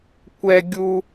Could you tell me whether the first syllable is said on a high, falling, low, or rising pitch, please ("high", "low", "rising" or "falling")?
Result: high